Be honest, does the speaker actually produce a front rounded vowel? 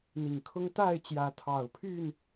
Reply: yes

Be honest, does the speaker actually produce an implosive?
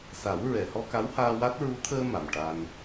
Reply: no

